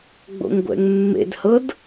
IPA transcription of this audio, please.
ɡ͡b o̰ ŋ ɡʷ ɛ̰ ŋ mː ḛ d h ɤ d

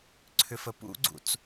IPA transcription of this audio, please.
ǀʰ ʏ f ə p ṵ ɡ͡ǀ ṵ t͡s

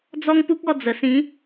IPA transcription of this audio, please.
d͡z ɔ˦ ŋ p u˦ k̚ ɔ˥˧ d͡z ə˨˩ s ĩ˨˦

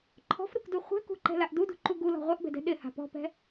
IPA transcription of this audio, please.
ǃʰ ɔ̤ f ɾ u k d u χʷ ɛ̤ k ṳ ǃ ɛ̤ l a ʔ d u d ṳ ǃ u ɡ u l ɔ̤ ʁʷ ɛ ʔ b ɛ̤ d ɛ̤ ɗ ɪ h a̤ p ɔ̤ p ɛ̤

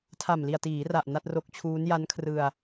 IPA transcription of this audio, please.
tʰ a˨˩ m l i˨˩ a̯ t iː˩˦ r a˨˩ ʔ n a˥˩ t̚ r o˦˥ k̚ t͡ɕʰ uː˦˥ n j a˦˥ n kʰ r ɯ˧ a̯

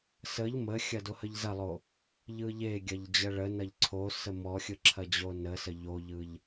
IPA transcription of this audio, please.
s ə ʎ m ə xʲ ɐ d o h ə ʎ z ɐ lˠ o | ʎ ɯ ʎ e ɡʲ ɐ ʎ d͡ʑ ɐ ɭ ə n ɐ ʎ ǀʰ o s ə m ɔ xʲ ɯ ǁʰ ɐ d͡ʑ o n ə s ə ʎ o ʎ ɯ ʎ

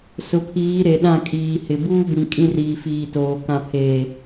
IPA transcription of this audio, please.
s ʊ˨ pʰ iː˨˦ ɾ e˨ ɗ ã˦˨ kʼ iː˨ h ɪ˨ b uː˦ b ĩ˨ kʼ ĩ˦ r iː˨ f iː˨ t oː˨ k ã˨ pʰ eː˨

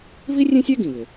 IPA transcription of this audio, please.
v i˥ rʲ ẽ˥ sʲ ɛ˥ ɡ ĩ˩ β ɪ˩

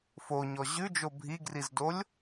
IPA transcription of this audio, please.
f o ɲ ɔ ʑ ʉ d͡ʒ o bʱ i ɡ r i z d o lʲ

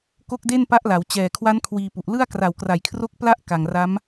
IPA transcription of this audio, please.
k o˥˩ k̚ d e˥˩ n p a˦˥ ʔ l a˩˦ w t͡ɕ ɛː˨˩ kʰ w a˦˥ n kʰ w iː˧ p u˨˩ ʔ l ɯ˥˩ a̯ k r a˨˩ w k r a˨˩ j kʰ r o˦˥ k̚ p l a˥˩ ʔ k a˨˩ ŋ r a˦˥ m

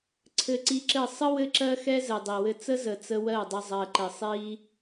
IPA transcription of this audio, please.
ǀʰ ɘ˧ ǀ i˧ ǁ ɘ˦˨ sˤ ə˦ w ɘ˦ ǁ ɜ˦ x ɛ˦ z ɘ˨ dˤ i˨ w ɘ˦ t͡s ə˦ z ə˨ t͡s ə˧ w ɜ˦˨ dˤ ə˧ zˤ ɜ˨ ǃ ɘ˨ sˤ i˧

